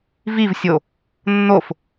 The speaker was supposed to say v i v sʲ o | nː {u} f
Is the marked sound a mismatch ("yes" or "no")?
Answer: yes